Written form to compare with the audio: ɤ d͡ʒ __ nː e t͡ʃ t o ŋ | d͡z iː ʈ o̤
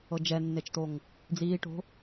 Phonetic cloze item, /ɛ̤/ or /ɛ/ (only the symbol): ɛ